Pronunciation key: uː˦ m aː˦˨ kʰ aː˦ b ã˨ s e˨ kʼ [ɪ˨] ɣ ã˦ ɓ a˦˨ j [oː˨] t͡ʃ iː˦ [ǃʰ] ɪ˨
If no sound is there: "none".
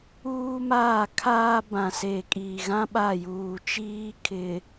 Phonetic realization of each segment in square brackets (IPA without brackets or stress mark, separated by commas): i˨, uː˨, kʰ